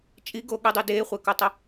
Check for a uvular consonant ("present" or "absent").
present